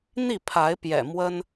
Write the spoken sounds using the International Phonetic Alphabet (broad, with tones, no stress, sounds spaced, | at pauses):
n̪ i˥˨ pʰ a˨˦ ɪ̯ p j ɛ̰˨˩ m w ə˦ n